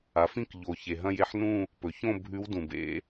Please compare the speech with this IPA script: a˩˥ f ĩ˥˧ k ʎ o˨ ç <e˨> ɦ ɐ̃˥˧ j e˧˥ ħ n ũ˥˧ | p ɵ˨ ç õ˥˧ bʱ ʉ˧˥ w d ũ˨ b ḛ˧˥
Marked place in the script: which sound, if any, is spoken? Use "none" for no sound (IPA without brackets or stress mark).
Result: e˨